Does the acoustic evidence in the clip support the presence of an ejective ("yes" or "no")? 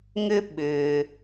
no